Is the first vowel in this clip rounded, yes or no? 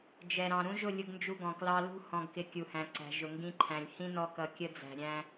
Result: no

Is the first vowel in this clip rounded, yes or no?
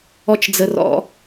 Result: yes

